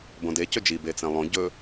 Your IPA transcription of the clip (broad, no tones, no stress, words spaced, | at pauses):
bõde cɵd͡ʒi bet͡sẽlˠõ ɟɵ